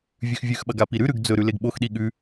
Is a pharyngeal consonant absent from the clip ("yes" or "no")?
yes